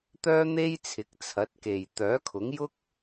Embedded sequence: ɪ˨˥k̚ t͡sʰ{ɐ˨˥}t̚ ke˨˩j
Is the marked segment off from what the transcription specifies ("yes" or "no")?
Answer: no